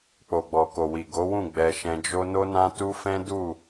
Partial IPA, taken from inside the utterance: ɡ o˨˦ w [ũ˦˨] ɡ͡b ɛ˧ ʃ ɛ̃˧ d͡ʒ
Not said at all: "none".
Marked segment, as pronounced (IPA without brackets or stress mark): ũ˦˨